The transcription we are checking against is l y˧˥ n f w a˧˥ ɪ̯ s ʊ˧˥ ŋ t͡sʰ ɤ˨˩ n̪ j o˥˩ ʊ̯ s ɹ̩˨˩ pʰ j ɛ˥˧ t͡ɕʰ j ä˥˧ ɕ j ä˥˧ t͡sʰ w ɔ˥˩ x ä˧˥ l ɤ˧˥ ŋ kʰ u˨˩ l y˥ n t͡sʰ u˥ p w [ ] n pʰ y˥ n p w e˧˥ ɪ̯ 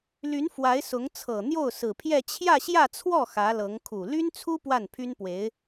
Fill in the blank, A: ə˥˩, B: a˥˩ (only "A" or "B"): B